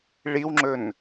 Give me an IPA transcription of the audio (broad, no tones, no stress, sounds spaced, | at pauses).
ɭ i w ŋ͡ǁ ɵ n